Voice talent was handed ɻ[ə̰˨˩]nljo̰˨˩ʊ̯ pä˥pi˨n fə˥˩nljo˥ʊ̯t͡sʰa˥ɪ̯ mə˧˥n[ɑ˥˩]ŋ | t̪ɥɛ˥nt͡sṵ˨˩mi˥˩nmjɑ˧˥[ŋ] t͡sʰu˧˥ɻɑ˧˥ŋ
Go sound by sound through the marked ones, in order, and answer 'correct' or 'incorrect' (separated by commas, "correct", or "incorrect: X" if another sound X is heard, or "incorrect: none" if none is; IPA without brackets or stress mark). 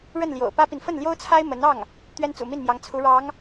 incorrect: ə˥˩, correct, correct